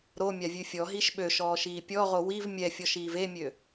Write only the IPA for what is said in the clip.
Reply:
ɾomʲavʲʉ fʲɔɦiʃ ɓøʃɔːʃiː pʲɔʁo wiv mʲɛfʲɔʃiːv emʲø

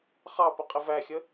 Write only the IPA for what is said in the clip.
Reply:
χɑpə qʼɪvæxʲə

